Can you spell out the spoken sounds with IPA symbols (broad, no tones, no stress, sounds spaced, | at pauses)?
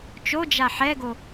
t͡ʃ o d͡ʒ a ħ ɛ ɡ o